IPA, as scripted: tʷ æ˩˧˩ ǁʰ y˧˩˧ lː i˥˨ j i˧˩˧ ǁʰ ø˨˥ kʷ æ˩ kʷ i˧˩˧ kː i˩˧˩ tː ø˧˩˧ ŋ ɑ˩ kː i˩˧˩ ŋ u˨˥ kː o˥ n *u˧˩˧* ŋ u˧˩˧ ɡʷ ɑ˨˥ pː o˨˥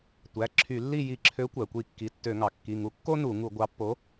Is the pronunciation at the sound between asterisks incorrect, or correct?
correct